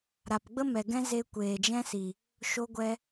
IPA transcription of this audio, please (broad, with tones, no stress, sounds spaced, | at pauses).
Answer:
ɾ a˨ p ɡ͡b ə˦ m ɛ˨ ɡ ɛ̃˧ z e˧ kʷ eː˨ d͡ʒ ɛ̃˧ s i˨ | ʃ o˧ ɡʷ ɛ˧